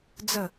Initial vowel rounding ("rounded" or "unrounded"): unrounded